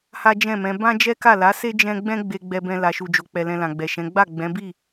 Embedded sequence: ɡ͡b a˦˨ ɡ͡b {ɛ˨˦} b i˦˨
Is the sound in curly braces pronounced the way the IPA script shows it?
no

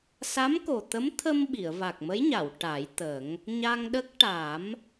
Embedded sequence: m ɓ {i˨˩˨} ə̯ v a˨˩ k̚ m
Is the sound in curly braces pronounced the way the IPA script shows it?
yes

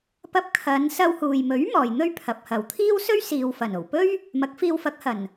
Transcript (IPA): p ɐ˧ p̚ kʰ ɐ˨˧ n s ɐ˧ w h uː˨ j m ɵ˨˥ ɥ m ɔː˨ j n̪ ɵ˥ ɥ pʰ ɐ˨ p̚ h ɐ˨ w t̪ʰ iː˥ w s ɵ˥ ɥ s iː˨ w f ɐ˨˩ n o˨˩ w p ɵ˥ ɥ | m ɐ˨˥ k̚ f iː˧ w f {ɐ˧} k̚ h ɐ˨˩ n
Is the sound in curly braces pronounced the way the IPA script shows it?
no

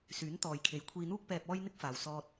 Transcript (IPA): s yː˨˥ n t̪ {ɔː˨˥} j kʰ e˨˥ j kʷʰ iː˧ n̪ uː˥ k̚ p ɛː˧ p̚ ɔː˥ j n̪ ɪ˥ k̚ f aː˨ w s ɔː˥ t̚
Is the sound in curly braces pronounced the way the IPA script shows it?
no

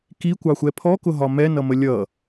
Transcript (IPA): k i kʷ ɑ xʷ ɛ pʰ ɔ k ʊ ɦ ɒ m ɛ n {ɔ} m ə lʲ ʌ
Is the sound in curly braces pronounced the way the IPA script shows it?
no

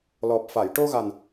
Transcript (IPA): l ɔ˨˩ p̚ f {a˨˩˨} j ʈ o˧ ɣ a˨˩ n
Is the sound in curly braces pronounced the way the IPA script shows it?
yes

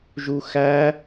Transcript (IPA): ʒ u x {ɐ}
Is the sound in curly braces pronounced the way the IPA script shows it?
no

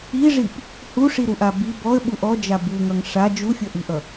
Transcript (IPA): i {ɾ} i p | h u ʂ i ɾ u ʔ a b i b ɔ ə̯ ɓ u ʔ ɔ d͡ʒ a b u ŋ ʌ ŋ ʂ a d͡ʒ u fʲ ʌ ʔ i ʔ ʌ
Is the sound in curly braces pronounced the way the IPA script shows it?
no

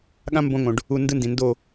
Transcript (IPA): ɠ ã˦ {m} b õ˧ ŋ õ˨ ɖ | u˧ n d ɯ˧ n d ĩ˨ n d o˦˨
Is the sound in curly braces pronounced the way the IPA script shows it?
yes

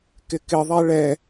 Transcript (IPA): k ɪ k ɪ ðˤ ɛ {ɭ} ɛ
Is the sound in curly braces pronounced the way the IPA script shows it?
yes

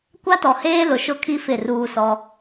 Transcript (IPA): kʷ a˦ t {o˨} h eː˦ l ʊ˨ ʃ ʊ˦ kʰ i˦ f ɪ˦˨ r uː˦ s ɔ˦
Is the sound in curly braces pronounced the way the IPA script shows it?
no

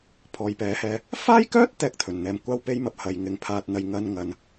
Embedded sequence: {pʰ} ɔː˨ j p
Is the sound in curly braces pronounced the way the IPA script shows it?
yes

